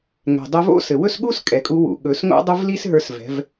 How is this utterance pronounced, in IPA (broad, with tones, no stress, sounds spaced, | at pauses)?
ŋ ɛ̤˩ dˤ ɵ˧ v o̰˥ s ɘ˩ w ɵ˥ s ɠ u˥ s kʼ ɛ˩ kʼ u˧˥ w ṵ˩˧ ɠ ɵ˩˧ s ŋ o̰˥ dˤ ʏ˥ v l i˥ s ɦ ə˞˧ s v ɛ̤˩˧ v